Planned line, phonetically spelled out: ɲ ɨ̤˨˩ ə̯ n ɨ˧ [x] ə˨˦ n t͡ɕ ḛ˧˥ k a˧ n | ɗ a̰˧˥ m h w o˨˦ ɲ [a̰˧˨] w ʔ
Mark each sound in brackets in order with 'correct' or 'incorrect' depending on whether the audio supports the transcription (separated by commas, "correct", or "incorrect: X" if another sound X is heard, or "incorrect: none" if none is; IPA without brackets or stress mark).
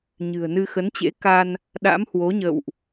correct, incorrect: ə̰˧˨